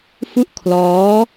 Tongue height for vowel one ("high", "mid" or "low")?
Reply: high